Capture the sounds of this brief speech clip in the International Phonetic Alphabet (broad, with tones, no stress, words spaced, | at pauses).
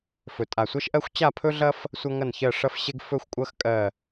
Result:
fɵ˨˩ tʼa˨˩sʷɐ˦ʃʔɜ˦xʷ t͡ɕa˦˨pʰɵ˦ɮɐ˦f | sʷɐ˦ŋɐ˦˨nçɜ˦˨ ʂɐ˦fɕe˦ɡ fɵ˦xʷkʷʼɐ˦x kʼɜ˦˨